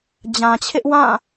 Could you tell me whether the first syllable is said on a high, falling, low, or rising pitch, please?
low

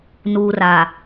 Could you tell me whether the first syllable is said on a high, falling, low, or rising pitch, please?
low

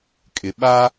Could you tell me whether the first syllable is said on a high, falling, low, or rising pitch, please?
low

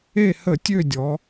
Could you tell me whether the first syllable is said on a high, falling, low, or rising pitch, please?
falling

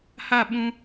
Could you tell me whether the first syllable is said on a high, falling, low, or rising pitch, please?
falling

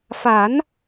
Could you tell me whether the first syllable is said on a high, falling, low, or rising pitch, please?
rising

